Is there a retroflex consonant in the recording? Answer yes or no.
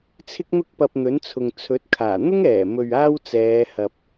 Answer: no